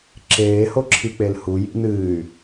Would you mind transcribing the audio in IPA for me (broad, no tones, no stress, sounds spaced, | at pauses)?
ǁ eː h o ǁʰ i k͡p e l h u j ḭ n ɨː y̯